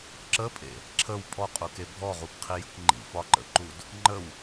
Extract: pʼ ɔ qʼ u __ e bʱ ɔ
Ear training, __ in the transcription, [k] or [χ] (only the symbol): k